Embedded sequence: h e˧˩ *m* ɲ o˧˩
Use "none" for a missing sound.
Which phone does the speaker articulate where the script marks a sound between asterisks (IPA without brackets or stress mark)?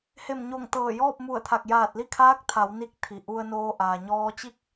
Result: m